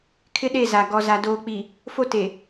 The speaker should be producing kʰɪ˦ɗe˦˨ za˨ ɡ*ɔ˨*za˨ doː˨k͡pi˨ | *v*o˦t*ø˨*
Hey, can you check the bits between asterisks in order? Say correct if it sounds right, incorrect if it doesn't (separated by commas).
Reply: correct, incorrect, incorrect